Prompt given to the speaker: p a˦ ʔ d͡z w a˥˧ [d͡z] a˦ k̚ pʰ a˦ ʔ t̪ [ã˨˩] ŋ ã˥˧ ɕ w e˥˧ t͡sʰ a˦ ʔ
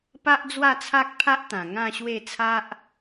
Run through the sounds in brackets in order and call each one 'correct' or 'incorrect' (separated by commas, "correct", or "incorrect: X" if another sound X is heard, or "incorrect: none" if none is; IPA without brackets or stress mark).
incorrect: t͡sʰ, correct